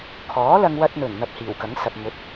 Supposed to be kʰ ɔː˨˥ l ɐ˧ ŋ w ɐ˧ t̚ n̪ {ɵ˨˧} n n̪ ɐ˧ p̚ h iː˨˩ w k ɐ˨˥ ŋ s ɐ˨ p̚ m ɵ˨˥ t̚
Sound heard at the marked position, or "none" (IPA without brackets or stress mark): ɵ˨˩